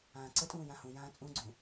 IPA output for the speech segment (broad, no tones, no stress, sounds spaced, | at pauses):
ãː ǀ ə tʼ ũː j ã h ũ j ãː t͡sʼ ũ ɡ͡ǀ ũ